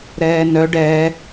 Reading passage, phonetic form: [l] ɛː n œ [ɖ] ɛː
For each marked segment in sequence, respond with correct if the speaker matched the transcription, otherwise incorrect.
incorrect: ɾ, correct

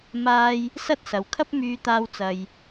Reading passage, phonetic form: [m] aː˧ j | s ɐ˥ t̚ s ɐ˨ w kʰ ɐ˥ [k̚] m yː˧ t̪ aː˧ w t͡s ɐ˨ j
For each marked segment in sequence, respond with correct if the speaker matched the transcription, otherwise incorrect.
correct, incorrect: p̚

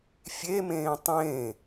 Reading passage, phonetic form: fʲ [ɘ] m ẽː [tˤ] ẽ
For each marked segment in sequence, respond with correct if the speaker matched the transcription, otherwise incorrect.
incorrect: e, correct

